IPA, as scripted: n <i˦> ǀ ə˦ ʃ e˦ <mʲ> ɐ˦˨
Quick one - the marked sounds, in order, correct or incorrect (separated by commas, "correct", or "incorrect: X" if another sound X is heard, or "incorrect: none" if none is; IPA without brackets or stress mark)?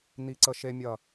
correct, correct